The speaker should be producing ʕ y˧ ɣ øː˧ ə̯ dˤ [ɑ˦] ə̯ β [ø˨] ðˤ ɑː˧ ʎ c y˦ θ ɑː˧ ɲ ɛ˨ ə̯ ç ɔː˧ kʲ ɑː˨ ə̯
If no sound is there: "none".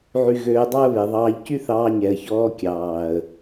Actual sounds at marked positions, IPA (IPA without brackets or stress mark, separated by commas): ɑ˦, e˨